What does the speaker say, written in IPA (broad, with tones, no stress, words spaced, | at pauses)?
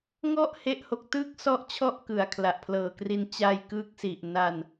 ŋɔ˥˩ʔ he˦˥ʔho˨˩k̚tɯː˥˩k̚ sɔ˥˩ʔt͡ɕʰɔ˥˩ʔ kɯ˨˩a̯kʰla˨˩ʔpʰlɤː˨˩kri˧n t͡ɕaː˧jkɯː˦˥k̚si˨˩ʔ na˧n